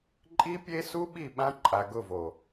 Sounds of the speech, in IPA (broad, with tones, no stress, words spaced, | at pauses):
ǃʼi˦pʲe˦su˦ɓi˦˨ ɓã˦ǃʼa˨ɡʊ˦˨vo˨